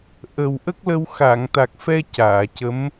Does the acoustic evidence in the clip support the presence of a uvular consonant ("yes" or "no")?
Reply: no